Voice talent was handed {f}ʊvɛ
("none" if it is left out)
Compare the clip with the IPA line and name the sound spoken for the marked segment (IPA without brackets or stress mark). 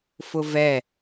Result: f